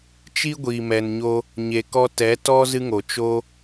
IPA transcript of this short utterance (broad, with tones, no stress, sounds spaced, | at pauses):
t͡ʃ i˦ ɡʷ iː˨ m ɛ˨ n ɲ o˧ | ɲ e˨ k ɔ˧ t ɛ˨˦ t ɔ˦ z ɨ˦ ŋ o˨ t͡ʃ o˧